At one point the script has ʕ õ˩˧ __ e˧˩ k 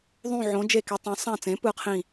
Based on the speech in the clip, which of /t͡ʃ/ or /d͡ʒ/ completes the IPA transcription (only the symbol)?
d͡ʒ